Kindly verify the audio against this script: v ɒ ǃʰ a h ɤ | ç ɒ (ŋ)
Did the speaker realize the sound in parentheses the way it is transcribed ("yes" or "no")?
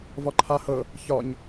no